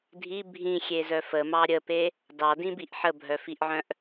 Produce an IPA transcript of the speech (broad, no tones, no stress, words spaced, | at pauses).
dʱi bʱĩxʲezœ fəmɑ ɾʲəpe | dɑdĩbiʔ ħəbʱœfiʔʕœ̃ʔ